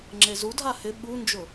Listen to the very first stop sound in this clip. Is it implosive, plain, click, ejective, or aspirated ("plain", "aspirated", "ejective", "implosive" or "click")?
click